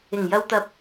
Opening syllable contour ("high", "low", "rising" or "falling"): low